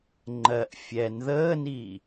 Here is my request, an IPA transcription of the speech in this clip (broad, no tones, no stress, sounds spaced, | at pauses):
ŋ͡ǃ ɜ ʔ fʲ ɛ n ð əː n iː